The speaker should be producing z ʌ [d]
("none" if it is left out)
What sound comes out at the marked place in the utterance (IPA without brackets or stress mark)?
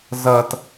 t